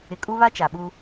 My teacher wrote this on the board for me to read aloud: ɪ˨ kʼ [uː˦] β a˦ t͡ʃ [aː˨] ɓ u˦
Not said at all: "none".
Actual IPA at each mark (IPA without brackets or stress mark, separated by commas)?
u˦, a˨